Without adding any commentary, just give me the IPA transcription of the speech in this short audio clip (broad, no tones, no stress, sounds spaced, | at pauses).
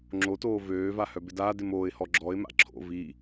ŋ͡ǁ o t oː v øː v a h œ b ɪ d aː d ɪ m oː ɪ̯ h ɔ ɡ͡ǁ ɔ ɪ̯ m a̰ ǁʰ o̰ v i